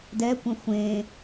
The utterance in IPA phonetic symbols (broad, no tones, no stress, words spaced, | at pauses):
dɛkʷə̃ xʷẽ